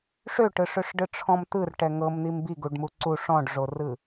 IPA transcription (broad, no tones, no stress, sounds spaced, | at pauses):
ʂ ø ʈ ɯ ʂ ø ʂ ɖ ɯ ʈ͡ʂʰ ɔ̃ m t̪ ɯ r ʈ ɛ ŋ ɤ m n̪ i m b i ɡ u ɖ m u ǀ u ʂ ɔ̃ ɖ ʐ o r ɯ